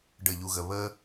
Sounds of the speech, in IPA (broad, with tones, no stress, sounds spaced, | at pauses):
ɖ ə˦˨ ʎ u˧ ɣ ə˧ β ə˦